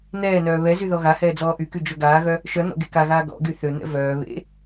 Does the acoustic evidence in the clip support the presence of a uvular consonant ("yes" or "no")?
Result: no